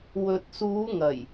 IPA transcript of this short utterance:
w ɵ˨ t̚ s uː˨˧ ŋ ɐ˨˩ j

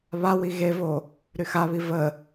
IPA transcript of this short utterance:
β a w i ɣ e v o | ɾ y x a β i v ə

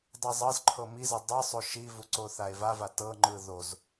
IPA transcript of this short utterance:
dˤ i zˤ ɤ z ǃʰ ɤ m i z ɤ dˤ ɯ sˤ o ʃ i v u ǀ o θ a e̯ v a v a t ɤ ŋ͡ǃ ɯ ð o z

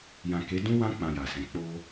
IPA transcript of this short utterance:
j ã˨ k e˨˦ d ũ˦ w ã˦ k͡p ã˧ j a˨ s ɛ̃˨˦ k͡p o˦

